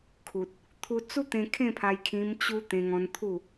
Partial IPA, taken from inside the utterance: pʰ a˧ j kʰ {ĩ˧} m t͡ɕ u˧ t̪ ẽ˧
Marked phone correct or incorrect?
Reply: correct